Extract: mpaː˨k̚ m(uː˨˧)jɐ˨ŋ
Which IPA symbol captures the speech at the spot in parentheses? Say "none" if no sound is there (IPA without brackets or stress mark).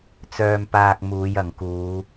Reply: uː˨˧